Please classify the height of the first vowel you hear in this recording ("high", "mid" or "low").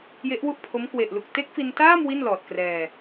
mid